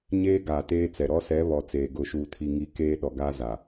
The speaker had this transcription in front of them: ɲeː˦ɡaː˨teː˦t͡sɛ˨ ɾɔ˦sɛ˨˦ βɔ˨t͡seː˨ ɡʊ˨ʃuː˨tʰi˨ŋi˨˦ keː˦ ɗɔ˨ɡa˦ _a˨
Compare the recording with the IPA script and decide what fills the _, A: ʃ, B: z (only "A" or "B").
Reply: B